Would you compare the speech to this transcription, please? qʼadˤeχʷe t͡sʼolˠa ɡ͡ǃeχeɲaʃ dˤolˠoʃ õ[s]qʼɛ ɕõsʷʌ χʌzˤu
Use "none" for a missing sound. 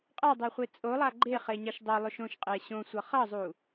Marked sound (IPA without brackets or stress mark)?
ʃ